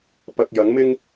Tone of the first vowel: low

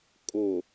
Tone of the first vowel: low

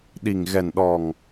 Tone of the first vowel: low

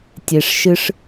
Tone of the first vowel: low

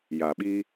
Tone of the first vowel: low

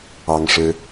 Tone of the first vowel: high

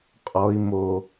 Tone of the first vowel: high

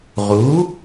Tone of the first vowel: rising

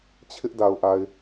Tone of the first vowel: high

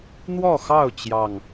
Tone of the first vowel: falling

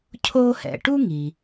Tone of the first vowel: high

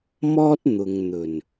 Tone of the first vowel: high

